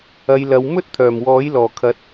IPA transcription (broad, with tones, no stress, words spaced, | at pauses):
ɐ˨˧jlɐ˨˧w mɵ˥t̚t̪ʰœː˨˩mwɔː˨˥j lɔː˨˩kʰɐ˨˥t̚